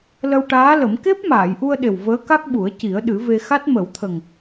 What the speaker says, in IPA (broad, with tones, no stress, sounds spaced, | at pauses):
l ə˧ w ʈ aː˧˥ l ə˨˩˦ m k e˦˥ p̚ m aː˨˩˨ j ʔ u˧ ə̯ ɗ e˨˩ w v əː˧˥ k a˦˥ k̚ ɓ u˨˩˦ ə̯ c i˨˩˦ ə̯ ɗ ɨ˨˩˦ v e˧ x a˦˥ t̚ m ə˨˩˦ w t̪ʰ ə˨˩ ŋ